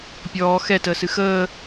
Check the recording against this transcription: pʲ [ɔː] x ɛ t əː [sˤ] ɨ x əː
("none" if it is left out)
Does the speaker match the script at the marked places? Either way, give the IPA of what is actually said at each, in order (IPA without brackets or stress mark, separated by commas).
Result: ɔː, s